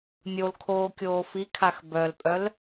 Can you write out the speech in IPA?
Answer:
nʲolkʰoː kʲoːfikʰax bœlpʼœl

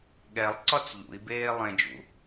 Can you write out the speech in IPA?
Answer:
ɠɛlˠǀɒt͡s ʎṵi̯beː lˠẽd͡ʒṵ

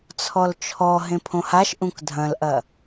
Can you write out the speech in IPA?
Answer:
t͡sʰɔlt͡ʃʰɔ ɦẽpʰõhaʃ ʔũkdʱɐ̃lʔɐ

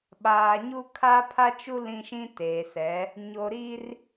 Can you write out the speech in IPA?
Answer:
ɓaː˨ɲu˦ kʰaː˦pʰa˦t͡ʃu˦ lĩ˦ʃĩ˦teː˨sɛ˨˦ | ɲo˨ ɾiː˦r

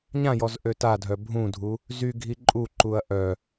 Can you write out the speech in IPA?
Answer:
ɲãjɔz ʔøtadʱœ bʱũdʱu | zyɡʱi ǃʼuǃuɐ̯ ʔœ

